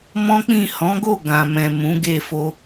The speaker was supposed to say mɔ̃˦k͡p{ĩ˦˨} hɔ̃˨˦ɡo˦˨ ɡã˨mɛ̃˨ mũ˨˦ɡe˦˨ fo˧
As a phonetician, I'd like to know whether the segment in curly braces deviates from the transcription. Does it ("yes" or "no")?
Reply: no